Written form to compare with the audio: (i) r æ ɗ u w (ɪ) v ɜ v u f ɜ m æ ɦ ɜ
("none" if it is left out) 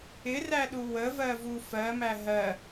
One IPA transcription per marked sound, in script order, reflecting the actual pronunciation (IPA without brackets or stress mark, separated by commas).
ɪ, ə